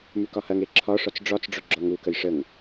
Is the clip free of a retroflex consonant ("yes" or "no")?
no